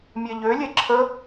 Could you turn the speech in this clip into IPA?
mʲɛʎølʲɛ ǁʰə

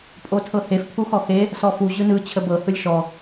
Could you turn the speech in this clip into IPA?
pʼotʰɤhef pʰuxɔxe | sɔfu ʑɯnɯ t͡ɕʰəbɤ hɯlʲʃɔ

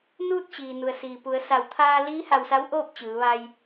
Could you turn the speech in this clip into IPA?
nuː˥˨t̚t͡ɕiː˩ nu˩ə̯siː˩pu˩˧ə̯sa˧˩w t̪ʰaː˧liː˧˥ ha˧wsa˧˥wʔoː˥˨p̚ t͡ɕɯː˩˧ʋa˧j

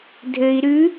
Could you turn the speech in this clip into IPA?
dʱɘi̯ ɾʉ

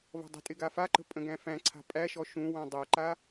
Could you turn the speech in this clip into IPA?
vɔ̤dˤə̤tʼɪ ɡafaǃə̤ pʼə̃ɡæ̃fæ̃ǀʰa̤ pʼæʃɔ ʃũ wãdˤæǃa

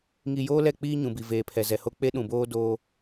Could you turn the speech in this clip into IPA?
ŋi˨ joː˦lɛ˦˨k͡piː˦ ɲũ˨bi˨ veː˨pʰɛ˨zɛ˨ho˦ k͡pe˦ɗũ˨boː˦ doː˦

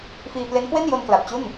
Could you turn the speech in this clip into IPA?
fiː˧ ple˦˥nkwe˥˩njo˧n kla˨˩p̚t͡ɕu˥˩n

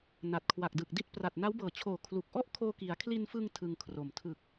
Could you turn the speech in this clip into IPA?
na˨˩t̚kʰwa˨˩k̚ dɯ˨˩k̚di˥˩t̚ pra˨˩t̚na˦˥wbɤː˨˩t͡ɕʰoː˨˩ kʰlu˨˩k̚ʔɔ˥˩ʔ kʰoː˧ki˩˦a̯ kʰli˧nfɯ˧ŋ tʰɯ˧ŋkʰro˨˩m tʰɯ˨˩k̚

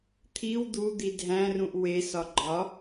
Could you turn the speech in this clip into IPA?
t̪ʰiw d̪ud̪i dʱæ̃rũʔ wesɒ ɡ͡ǃɒ

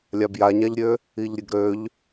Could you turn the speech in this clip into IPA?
lʲabjaɲaʎɾʲø | iʎɾʲəɡɾøʎ

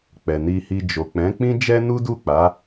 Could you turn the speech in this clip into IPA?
k͡pɛ˨ ni˧hi˧ d͡ʒo˨k͡pɛ̃˨˦k͡pĩ˦ d͡ʒɛ˦nu˦du˦˨k͡pa˨˦

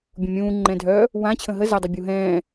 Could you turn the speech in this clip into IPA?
bʲũmʲũː ŋ͡ǃɛ̃ːdʱœ | wãt͡ɕʰə̃ ɦə zadˤa bʲuɦɛ̃ː

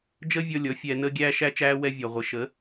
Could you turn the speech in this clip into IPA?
d͡ʒəː˦vʲɔ˧ lʲɔ˨˦fʲɛː˧ nəː˧ɡʲæː˧ʃæ˧t͡ʃæː˧ wɛ˧vʲɒ˨ʁʷɪ˨ ʃə˨˦

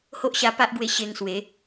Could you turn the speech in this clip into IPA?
ho˦ʔɕa˧pa˦ʔɡwe˧ ɕe˧ŋswe˨˦

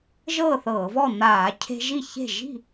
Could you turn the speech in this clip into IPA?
ʒɤː˥˨θɤː˧˩˧vɔ˥˨ n̪aː˧˩˧ cʰe̤˦ʒi˥˨çe̤˥˨ ʒi̤˥˨

